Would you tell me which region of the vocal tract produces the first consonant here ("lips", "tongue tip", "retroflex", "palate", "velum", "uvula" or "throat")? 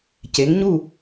palate